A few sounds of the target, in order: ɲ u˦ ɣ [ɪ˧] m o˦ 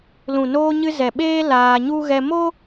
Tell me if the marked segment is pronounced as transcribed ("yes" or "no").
no